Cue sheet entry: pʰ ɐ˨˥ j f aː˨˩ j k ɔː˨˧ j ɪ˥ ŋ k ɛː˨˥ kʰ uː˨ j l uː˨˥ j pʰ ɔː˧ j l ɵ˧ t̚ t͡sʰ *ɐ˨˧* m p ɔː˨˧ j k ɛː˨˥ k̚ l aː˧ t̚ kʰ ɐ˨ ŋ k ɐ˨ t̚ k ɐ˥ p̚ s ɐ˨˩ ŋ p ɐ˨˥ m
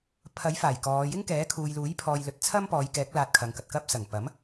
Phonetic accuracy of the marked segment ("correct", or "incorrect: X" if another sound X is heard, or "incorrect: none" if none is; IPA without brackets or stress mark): incorrect: ɐ˥